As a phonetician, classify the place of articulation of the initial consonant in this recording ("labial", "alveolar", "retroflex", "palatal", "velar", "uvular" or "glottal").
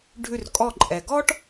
retroflex